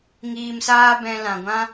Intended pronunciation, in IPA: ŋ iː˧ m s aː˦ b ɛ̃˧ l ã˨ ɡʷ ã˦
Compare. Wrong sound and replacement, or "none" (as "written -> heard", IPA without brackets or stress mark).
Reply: none